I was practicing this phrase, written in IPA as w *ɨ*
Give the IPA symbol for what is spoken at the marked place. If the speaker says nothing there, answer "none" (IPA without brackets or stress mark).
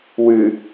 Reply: ɨ